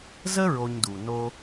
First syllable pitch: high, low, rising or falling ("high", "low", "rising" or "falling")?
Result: high